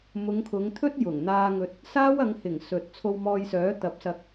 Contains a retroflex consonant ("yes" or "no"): no